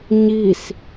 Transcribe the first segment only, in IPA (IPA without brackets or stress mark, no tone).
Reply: ɲ